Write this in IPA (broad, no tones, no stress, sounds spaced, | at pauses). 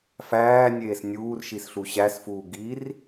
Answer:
f æː nʲ eː s nʲ uː r ʃ i s ɬ u ɕ æ s f uː ɡ i r